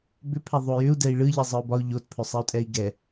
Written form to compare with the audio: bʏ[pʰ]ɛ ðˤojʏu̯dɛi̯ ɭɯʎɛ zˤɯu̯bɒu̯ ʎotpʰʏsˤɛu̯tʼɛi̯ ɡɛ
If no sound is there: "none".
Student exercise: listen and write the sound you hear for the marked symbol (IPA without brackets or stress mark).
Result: pʰ